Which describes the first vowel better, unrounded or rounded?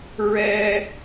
unrounded